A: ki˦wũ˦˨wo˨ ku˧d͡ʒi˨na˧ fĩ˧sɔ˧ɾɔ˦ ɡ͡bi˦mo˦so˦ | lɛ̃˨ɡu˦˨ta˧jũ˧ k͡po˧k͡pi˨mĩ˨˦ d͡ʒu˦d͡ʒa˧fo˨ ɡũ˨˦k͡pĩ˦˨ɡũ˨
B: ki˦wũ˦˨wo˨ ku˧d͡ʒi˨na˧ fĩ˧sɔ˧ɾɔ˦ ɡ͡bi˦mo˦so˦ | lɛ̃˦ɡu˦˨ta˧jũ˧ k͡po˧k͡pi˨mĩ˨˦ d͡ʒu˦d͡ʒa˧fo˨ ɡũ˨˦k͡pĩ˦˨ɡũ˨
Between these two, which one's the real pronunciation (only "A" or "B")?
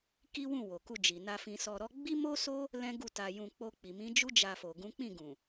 B